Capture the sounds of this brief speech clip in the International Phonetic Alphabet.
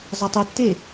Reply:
zˤ ʌ tˤ u tː e

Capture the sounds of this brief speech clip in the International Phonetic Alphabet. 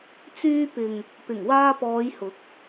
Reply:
t͡s yː˧ p ɪ˨ ŋ | p ɪ˨˩ ŋ w aː˧ p ɔː˨˧ j h ʊ˨˥ k̚

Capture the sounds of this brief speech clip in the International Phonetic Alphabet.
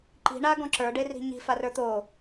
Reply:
ǃ i̤ ɳ a ɡ ɔ̃ ǁ ə˞ ɖ e r i̤ ɲ i̤ f a r ə˞ t̪ o

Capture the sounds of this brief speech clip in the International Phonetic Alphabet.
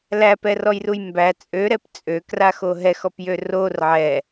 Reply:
l æ p ɛ r ɔ j r u j m b æ t͡sʼ ø ɾ ɛ p t͡sʼ ø k r a x o ɦ ɛ x ɔ p j ø r o r ʕ ɛ

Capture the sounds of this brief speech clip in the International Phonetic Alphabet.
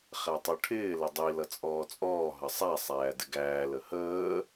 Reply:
χ æ tˤ u ʈʰ ɪː l ə dˤ i l ʌ t͡sʼ ɔː t͡sʼ ɔː ɦ ʌ sˤ æ sˤ æː d ɪ ɡ æː l ə h əː

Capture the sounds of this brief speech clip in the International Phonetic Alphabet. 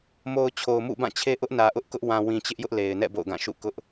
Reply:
m o˨ ʊ̯ t͡ɕʰ o˨ ʊ̯ m ṵ˦˨ b ã˦˨ t͡ɕʰ e˦ ʔ ʊ˦ ʔ n ä˨ ʔ ʊ˦ ʔ k ʊ˦ ʔ w ã˨ w ĩ˨ t͡ɕ ɪ˦ ʔ j ʊ˦ ʔ l e˨ ɪ̯ n ɛ̰˦˨ b o̰˦˨ ʊ̯ ɡ ã˦˨ ʃ ṵ˦˨ k ʊ˦ ʔ

